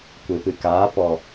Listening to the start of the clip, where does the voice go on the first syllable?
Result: low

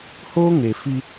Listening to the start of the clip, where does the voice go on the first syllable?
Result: high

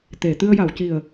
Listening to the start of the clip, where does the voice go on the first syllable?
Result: low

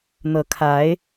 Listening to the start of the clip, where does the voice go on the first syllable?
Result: rising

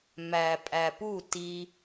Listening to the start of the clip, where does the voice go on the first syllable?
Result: low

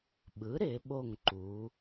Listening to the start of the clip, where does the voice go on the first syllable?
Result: rising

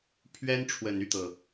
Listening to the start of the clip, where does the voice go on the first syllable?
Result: high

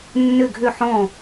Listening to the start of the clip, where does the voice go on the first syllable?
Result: falling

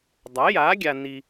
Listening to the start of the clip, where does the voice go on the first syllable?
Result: rising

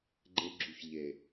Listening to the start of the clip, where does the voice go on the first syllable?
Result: low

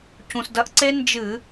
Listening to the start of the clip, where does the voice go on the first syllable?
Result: low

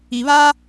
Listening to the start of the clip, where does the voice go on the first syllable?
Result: low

